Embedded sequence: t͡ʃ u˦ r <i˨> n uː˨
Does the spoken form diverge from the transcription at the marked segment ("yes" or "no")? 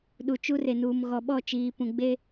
yes